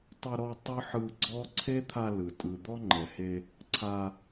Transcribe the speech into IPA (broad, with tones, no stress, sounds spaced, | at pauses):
tˤ ɤ˧ ɾ ɔ˧ tˤ ɤ˦ ħ ɯ˧ ɡ͡ǀ ɔ˦ ǀʰ e˦ t̪ʰ a˧ l ɯ˨ tʼ ɯ˨ d̪ ɔ˦ ŋ͡ǃ ɛ˨ h e˧ | ǀʰ a˧